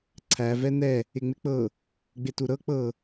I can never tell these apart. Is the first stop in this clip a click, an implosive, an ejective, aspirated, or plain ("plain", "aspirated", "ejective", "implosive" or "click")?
click